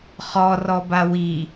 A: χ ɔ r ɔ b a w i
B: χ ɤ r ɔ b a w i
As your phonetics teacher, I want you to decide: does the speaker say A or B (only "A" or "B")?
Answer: A